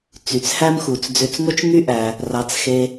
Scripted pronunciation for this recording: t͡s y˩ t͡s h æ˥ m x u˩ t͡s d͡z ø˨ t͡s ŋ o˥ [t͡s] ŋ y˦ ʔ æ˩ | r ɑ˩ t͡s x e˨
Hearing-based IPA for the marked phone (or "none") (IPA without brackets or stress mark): t͡ʃ